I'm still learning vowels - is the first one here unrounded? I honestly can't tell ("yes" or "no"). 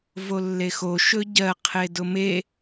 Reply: no